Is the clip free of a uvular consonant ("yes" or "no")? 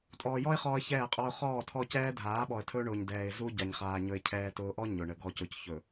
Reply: no